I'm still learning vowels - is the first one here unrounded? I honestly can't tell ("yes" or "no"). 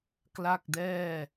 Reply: yes